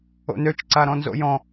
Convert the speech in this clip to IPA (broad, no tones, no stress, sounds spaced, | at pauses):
o̰ n ø t͡ʃ ǀ a ɾ ɔ̃ n z o̰ j ɔ̃